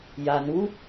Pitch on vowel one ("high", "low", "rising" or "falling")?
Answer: low